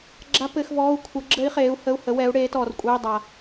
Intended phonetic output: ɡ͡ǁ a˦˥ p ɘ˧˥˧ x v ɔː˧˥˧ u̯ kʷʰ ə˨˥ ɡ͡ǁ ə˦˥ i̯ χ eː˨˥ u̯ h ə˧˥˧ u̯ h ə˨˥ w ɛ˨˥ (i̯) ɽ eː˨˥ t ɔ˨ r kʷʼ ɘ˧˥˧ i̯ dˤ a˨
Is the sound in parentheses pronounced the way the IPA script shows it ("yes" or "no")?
no